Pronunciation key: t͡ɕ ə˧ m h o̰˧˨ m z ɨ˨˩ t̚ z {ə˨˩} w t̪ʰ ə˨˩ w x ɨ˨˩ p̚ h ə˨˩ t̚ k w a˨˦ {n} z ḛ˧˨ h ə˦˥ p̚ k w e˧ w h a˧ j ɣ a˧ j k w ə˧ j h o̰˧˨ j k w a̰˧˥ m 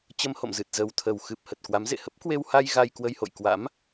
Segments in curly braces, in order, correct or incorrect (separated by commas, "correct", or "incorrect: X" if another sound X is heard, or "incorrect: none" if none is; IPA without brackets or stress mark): correct, incorrect: m